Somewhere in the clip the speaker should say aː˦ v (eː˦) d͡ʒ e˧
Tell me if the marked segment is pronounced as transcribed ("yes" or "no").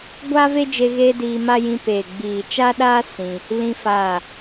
no